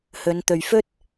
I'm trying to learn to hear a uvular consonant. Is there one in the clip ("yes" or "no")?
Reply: no